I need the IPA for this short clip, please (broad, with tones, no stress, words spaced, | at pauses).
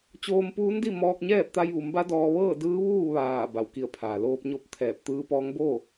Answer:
t͡ɕoː˧mpuː˧˥ndi˥˨mɔː˧k̚ ɲɛː˥˨p̚t̪a˧jʋu˩˧mba˧˥ dɔː˧ ʋɤː˥˨ dɯː˧˥ʋuː˥˨ ʋaː˧˩ ba˩wki˧˩ə̯pʰaː˩ loː˧p̚ɲo˥˨p̚t̪ʰɛː˧˩p̚ t̪ɯː˧˥pɔː˧˥ŋ bo˥˨